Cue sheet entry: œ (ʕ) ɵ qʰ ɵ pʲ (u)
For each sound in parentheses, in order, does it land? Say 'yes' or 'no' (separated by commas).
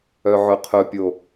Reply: yes, no